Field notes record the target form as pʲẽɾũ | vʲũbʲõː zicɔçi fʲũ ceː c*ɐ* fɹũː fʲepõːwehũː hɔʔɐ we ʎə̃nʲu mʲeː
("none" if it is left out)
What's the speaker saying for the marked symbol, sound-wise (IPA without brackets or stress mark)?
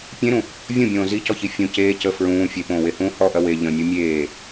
ə